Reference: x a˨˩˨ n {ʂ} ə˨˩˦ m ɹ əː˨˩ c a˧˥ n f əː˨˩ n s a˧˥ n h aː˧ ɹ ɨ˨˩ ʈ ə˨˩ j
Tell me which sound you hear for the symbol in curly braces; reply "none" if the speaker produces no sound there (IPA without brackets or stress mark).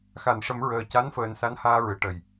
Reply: ʂ